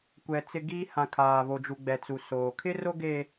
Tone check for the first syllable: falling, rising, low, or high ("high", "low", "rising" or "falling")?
low